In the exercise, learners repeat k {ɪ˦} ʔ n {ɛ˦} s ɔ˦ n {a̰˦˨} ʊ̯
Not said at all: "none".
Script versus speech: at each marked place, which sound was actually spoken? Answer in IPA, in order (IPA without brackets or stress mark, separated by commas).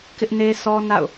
ɪ˦, e˦, a̰˦˨